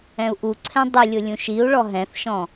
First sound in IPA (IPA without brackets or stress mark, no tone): ɛ̃